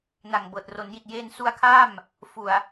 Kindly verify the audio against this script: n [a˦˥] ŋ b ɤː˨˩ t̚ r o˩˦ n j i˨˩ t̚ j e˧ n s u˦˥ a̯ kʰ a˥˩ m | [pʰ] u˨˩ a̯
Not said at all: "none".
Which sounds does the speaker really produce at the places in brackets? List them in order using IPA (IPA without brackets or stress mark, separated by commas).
a˨˩, f